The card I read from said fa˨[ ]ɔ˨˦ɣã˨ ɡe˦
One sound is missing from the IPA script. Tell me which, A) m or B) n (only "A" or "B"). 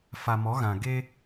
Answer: A